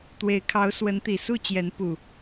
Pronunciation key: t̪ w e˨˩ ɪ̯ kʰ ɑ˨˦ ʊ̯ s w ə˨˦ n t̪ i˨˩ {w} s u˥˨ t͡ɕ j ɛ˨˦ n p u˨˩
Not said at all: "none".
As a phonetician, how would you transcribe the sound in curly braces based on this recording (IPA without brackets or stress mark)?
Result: none